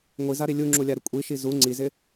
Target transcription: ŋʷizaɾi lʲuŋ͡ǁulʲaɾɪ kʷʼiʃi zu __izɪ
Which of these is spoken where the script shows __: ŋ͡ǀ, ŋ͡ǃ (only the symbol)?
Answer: ŋ͡ǀ